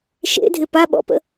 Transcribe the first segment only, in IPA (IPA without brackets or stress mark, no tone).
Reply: ʃ